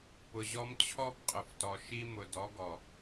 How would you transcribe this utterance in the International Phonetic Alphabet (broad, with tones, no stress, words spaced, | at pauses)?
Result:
pʊ˨ʑɔ˦m t͡ɕʰɔ˦pqʼʊ˨ftɔ˨ ʃi˦mʊ˨ dɔ˨˦ɡɔ˨